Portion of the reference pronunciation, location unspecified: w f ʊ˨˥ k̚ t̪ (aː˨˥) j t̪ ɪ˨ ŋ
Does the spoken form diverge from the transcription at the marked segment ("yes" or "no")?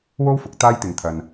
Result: yes